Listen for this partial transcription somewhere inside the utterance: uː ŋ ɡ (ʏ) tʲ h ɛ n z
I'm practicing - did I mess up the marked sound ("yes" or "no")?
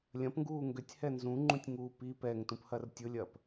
no